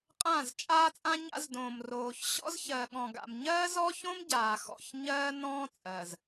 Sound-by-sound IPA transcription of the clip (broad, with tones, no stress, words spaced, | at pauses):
qʼãː˦˨zt͡ʃʼaː˦t͡sʼã˦ ɲa̰˦zdõː˨mroː˨ç ɕɔ̰˦zçɜ˨ɠɔ̃˨ɡa̰˨m ɲɜː˦zɔ˦çõ˦m ɟaː˨xɔ̰˦˨ç ɲɜː˦nɔ̃ː˦ t͡sʼɜ˨z